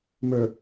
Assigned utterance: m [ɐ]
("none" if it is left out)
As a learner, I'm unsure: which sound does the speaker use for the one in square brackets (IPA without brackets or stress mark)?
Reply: ə˞